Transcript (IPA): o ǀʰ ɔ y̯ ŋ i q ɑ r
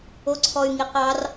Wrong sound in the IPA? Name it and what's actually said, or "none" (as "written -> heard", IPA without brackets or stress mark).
none